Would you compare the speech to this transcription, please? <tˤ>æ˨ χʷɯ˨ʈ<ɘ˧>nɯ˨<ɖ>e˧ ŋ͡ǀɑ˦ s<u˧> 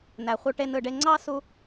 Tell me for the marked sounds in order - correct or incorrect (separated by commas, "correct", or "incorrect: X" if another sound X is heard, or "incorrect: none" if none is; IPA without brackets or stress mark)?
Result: incorrect: n, incorrect: e˧, correct, correct